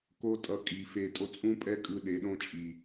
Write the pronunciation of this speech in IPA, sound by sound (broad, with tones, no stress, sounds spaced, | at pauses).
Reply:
k o˦ tʼ ʌ˧ kʼ i˨ f e˧ tʼ o˧ t͡sʼ ũ˦ pʼ ɛ˦ kʼ ɯ˧ ɗ e˨˦ ɗ õ˦ t͡ʃʼ i˨